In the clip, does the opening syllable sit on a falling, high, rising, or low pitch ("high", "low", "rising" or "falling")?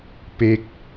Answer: falling